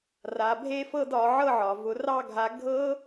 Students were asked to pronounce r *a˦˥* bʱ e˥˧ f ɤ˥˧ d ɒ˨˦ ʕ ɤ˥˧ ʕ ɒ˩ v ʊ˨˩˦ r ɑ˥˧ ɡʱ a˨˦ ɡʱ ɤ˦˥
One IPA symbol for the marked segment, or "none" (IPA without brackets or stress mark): a˩